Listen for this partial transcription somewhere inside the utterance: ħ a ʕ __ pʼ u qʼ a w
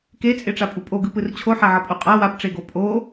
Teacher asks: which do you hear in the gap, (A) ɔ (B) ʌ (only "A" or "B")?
B